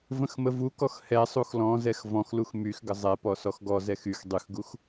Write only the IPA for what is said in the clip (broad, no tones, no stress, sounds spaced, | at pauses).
v ə̃ x m ə v u k ɔ x h ɛ sˤ u x l ɔ̃ z ɛ x v ɔ̃ x l u x m y x ɡ ə zˤ ɛ p ɔ s ɔ x ɡ ɔ z ɛ x y x dˤ y x ɡ u x